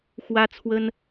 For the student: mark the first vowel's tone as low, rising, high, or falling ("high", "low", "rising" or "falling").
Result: high